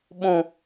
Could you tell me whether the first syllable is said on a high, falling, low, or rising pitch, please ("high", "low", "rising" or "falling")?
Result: low